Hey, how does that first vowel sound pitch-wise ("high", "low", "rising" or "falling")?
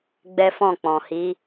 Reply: high